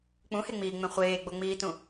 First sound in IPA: k͡p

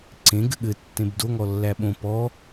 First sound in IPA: ǀ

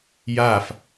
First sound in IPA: j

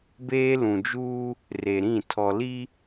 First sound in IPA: b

